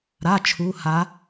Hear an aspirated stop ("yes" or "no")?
yes